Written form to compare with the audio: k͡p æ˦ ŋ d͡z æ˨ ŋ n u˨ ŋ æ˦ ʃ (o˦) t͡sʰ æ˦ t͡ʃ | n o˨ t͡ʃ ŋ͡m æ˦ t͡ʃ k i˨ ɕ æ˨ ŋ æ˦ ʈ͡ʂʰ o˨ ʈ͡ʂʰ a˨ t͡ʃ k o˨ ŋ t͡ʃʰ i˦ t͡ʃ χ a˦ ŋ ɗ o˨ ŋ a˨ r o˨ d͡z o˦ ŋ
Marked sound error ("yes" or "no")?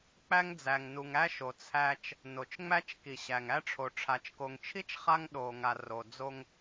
yes